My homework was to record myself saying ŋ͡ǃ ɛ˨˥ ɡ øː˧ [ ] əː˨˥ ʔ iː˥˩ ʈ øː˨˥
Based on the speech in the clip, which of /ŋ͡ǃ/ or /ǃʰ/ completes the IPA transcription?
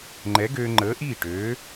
ŋ͡ǃ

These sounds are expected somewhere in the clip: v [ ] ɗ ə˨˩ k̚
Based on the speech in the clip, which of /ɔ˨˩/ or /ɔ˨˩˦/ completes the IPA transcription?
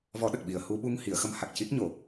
ɔ˨˩˦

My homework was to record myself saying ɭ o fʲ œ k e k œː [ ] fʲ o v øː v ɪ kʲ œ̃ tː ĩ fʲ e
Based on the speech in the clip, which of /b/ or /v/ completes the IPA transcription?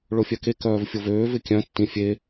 v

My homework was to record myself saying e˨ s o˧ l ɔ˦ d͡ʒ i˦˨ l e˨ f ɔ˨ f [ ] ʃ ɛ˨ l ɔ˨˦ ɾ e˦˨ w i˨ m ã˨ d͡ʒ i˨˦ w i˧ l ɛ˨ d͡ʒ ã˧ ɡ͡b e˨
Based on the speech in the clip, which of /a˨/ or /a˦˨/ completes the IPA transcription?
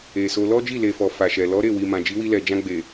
a˨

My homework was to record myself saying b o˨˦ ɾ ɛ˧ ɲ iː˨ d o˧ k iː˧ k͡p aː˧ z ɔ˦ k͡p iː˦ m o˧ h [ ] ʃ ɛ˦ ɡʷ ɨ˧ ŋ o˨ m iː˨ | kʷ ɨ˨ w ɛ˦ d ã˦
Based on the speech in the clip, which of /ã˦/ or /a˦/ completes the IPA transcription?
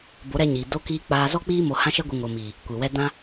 ã˦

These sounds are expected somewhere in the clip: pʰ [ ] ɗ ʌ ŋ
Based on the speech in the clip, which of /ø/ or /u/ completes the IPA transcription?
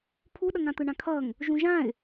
u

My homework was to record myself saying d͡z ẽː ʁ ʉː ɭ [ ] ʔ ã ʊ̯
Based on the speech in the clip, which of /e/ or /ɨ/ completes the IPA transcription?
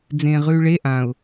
e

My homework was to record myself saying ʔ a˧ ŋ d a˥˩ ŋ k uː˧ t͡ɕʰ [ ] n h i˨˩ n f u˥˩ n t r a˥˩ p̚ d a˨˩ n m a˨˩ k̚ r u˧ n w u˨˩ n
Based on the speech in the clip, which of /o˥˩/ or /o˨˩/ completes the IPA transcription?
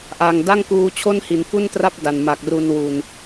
o˥˩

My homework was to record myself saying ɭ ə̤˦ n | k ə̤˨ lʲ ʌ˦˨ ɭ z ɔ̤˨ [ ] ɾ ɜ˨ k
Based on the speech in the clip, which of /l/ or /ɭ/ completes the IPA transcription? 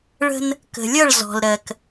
l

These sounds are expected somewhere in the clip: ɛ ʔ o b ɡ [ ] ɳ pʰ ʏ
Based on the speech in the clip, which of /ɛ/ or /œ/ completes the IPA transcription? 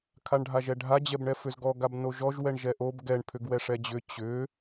ɛ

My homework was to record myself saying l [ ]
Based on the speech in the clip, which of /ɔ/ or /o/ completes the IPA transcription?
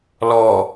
ɔ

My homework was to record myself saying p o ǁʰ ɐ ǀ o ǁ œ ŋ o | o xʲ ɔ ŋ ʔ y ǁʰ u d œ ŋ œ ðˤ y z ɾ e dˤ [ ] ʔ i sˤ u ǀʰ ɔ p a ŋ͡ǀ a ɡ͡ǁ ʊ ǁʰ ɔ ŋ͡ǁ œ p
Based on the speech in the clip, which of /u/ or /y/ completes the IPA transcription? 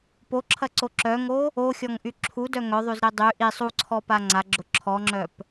y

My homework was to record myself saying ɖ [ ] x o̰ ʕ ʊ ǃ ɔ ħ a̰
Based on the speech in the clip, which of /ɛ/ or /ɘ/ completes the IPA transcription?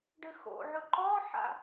ɘ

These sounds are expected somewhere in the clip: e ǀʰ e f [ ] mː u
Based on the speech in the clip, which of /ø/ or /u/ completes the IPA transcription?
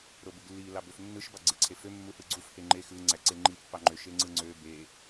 ø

